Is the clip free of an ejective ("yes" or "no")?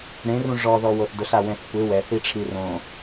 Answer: yes